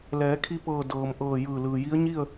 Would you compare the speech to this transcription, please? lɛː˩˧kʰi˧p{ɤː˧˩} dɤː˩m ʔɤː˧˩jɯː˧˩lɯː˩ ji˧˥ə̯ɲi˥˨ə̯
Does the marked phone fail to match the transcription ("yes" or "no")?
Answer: no